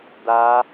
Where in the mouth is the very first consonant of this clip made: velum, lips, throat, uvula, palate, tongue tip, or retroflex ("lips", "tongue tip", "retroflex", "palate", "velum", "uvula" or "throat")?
tongue tip